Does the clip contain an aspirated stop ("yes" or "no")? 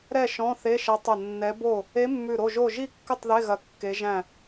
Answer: no